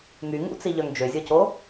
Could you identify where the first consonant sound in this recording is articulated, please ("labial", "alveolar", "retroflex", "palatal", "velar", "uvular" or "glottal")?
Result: velar